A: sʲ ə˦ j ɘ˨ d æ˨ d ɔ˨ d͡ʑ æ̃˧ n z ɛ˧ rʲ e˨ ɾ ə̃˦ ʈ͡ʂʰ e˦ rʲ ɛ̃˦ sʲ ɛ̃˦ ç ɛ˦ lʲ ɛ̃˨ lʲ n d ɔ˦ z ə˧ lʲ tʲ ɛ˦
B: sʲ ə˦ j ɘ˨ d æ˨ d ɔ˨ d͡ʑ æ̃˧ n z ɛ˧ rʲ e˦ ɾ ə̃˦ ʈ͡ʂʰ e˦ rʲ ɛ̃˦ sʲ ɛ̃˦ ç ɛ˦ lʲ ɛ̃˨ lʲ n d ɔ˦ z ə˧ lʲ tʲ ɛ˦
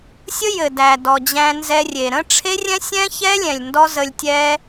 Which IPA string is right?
A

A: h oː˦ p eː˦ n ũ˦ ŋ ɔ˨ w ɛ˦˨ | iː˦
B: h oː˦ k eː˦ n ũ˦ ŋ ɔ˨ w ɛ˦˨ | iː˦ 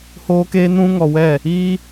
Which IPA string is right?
B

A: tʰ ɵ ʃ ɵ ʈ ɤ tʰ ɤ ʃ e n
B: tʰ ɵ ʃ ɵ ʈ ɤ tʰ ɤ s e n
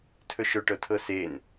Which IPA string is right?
B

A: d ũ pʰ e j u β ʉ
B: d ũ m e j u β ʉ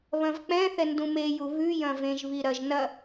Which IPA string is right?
B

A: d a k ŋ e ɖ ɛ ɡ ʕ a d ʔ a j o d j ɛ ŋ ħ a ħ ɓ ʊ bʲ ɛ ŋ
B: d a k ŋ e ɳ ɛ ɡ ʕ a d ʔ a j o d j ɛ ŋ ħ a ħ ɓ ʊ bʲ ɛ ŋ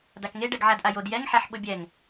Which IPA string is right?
A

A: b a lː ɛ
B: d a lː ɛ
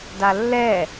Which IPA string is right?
B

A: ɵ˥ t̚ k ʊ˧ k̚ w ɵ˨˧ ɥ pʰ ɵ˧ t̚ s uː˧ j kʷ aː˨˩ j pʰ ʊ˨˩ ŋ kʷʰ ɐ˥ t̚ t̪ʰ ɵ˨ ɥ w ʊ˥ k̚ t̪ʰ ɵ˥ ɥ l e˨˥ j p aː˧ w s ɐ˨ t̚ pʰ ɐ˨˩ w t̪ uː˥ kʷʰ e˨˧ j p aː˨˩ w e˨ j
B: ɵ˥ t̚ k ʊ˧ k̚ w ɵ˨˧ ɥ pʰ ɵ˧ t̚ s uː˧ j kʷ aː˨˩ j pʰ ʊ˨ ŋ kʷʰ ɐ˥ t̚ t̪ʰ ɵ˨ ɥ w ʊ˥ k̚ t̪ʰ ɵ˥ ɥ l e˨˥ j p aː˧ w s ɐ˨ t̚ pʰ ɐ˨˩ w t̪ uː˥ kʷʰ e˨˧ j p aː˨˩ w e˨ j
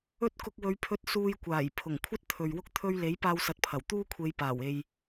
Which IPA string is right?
A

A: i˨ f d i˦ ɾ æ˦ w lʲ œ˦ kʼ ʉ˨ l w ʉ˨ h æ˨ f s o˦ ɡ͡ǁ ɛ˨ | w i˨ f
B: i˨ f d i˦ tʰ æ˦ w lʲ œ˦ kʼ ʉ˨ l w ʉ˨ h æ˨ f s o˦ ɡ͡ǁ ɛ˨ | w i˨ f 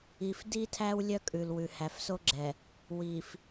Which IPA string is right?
B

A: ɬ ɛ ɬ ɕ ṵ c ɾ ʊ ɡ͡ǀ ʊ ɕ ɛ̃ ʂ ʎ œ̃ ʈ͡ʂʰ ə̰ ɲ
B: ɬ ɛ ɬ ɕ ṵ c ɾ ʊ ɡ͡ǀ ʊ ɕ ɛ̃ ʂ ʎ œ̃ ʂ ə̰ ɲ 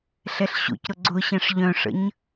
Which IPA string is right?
B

